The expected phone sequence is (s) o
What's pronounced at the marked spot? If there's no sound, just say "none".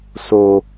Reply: s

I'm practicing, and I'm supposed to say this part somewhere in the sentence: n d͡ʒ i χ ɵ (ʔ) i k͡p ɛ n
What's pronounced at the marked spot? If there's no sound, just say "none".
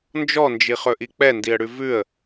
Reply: ʔ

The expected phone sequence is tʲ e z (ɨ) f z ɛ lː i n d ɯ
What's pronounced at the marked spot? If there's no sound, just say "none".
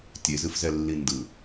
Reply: ɨ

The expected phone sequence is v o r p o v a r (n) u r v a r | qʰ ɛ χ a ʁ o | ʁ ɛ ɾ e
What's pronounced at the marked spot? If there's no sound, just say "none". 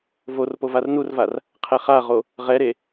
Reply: n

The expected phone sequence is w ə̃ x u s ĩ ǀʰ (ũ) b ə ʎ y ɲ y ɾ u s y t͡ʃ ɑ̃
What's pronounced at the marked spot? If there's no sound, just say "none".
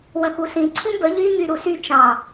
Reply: ũ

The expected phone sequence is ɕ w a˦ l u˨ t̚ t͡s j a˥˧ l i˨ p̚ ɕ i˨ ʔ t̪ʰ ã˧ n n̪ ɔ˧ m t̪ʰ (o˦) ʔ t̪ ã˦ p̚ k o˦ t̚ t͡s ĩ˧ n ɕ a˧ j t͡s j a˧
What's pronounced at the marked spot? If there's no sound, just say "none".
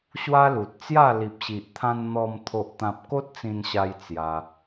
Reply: o˦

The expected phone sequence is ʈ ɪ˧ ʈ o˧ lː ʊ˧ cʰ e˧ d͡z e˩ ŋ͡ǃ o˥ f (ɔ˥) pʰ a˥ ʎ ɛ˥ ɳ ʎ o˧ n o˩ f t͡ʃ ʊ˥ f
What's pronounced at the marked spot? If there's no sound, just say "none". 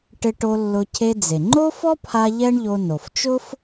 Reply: ɔ˥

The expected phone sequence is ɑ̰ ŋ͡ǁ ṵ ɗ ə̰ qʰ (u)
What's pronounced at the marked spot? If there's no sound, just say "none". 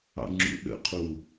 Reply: u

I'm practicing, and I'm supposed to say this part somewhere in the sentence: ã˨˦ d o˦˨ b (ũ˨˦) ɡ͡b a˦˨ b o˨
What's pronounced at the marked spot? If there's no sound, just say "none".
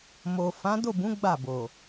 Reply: ũ˨˦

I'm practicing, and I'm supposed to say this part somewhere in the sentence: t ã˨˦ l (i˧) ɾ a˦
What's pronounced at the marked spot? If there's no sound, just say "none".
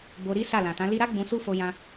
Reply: i˧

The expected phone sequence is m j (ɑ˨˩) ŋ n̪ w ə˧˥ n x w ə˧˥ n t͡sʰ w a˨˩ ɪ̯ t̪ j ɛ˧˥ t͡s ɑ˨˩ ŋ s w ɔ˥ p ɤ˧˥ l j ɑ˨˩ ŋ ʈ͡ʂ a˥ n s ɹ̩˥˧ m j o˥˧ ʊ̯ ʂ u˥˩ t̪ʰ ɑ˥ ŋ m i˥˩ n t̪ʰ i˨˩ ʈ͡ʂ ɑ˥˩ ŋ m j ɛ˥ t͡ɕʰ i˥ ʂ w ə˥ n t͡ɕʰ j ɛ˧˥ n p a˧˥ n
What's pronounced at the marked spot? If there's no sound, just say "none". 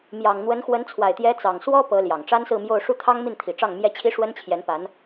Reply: ɑ˨˩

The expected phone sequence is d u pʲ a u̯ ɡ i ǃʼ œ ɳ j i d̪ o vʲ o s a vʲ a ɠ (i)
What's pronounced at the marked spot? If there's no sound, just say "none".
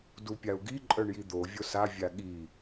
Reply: i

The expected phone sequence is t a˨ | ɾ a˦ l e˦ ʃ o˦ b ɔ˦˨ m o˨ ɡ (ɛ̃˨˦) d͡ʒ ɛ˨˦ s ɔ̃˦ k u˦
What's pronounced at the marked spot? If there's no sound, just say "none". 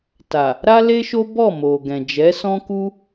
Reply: ɛ̃˨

